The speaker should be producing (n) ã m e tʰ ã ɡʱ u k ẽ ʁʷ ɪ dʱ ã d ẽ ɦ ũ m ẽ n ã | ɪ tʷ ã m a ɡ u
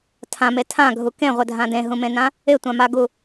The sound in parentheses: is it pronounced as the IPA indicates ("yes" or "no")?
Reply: no